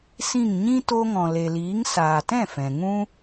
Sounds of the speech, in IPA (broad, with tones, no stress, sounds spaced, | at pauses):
s ĩ˦˨ ŋ ɲ ĩ˦ t o˧ ŋ ɔ̃˨ l e˨ l iː˨˦ ŋ s aː˨ t ɛ̃˦˨ f ɛ̃˨ ŋ ũ˦